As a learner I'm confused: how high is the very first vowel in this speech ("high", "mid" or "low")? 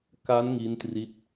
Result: low